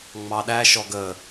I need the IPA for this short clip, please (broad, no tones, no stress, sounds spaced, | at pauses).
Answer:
ŋ͡m ɑ ɗ æ ʃ ɔ ɡ ə